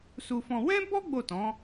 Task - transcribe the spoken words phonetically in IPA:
su˧fɔ̃˧ wɛ̃˦bɔ˦ ɡ͡bo˦˨tɔ̃˨˦

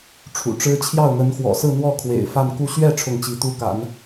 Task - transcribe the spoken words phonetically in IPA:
ʈ͡ʂʰṵ˨˩ʈ͡ʂɻ̩˥ t͡ɕʰjɑ˥˩ʊ̯n̪ə˧˥nxwɔ̰˨˩ sɹ̩˥˧n̪wɔ˥˩ kʰwḛ˨˩ɪ̯fa˥˧nku˥˧ ɕɥɛ˥˧ ʈ͡ʂʰʊ˥˩ŋt͡ɕi˧˥t̪u˥ ka̰˨˩˦n

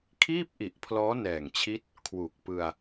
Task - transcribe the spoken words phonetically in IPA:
kʰiː˥˩p̚ʔi˨˩ʔpʰlɔː˦˥ nɛː˨˩ŋt͡ɕʰi˦˥t̚ | kʰwu˨˩k̚pɯ˧a̯

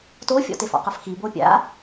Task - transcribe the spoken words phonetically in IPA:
tofʲɔ̰tef ɔ̰qɤfxibo pʲa̰

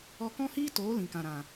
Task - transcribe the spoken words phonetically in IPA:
ɔ˧ kɔ̃˦hiː˦toː˨˦ lĩ˨kã˨ɾã˨

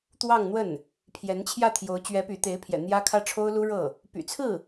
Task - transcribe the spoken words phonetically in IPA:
t̪wɑ˥˧ŋn̪wə˥˩n | pʰjɛ˧˥nt͡ɕʰjä˥˩ t̪ʰjo˧˥ʊ̯ t͡ɕɥɛ˧˥ py˧˥ t̪e˧˥ɪ̯pʰjɛ̰˨˩ n̪jä˥ kʰä˥ʈ͡ʂʰo˥ʊ̯lu˥ɻɤ˥˩ | py̰˨˩t͡sʰɹ̩˥˩

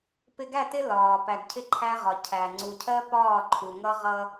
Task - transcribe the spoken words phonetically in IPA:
pɪ˨ɡæ˦˨tɪ˦ lɒː˨ pæ˨ɡcʰɪ˦ǃʰæ˦ʁɒ˨ cʰæ˨ ŋ͡ǀu˨cʰɜ˦ pɒː˦˨ǃʰu˨ŋʌ˦ ʁʌ˦

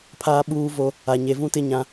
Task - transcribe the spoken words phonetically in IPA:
pʰaː˦ɓuː˦vo˦ | a˨ɲe˨vũ˦ tɪ˦ɲã˦

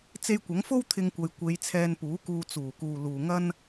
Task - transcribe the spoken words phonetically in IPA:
t͡se˧jkʷɐ˨˥ŋfo˥w t̪ʰɪ˧ŋkʷɐ˨j kʷe˨˧j t͡sʰɛː˧npuː˨˥kuː˧ t͡suː˨˩ kuː˨ luː˨ŋɐ˥n

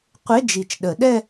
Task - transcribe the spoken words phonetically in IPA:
qʷe˧˥˧d͡ʒi˨˩t͡ʃɗə˨˩˦ɗɛ˥˧

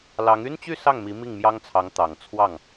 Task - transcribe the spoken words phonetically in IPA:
lɑ˧˥ŋ y˥nt͡ɕy˥˧ sɑ˥˩ŋmi˧˥ mi˥˩ŋmjɑ˥ŋt͡sʰɑ˧˥ŋ t̪ɑ˨˩ŋ t͡sʰwɑ˥˩ŋ

